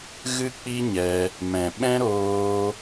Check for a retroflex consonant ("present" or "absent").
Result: absent